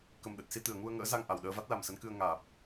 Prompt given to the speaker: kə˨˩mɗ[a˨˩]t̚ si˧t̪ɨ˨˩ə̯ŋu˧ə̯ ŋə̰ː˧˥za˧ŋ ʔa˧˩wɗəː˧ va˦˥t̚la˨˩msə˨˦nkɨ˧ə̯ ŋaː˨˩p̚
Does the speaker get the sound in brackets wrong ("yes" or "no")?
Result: yes